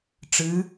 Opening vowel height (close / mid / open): close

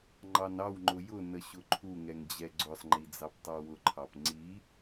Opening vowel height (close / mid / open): open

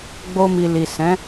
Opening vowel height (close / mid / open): mid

